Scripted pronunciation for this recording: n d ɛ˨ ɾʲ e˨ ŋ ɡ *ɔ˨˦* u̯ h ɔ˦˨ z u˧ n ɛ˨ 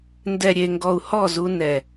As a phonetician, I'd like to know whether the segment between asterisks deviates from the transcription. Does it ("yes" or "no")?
yes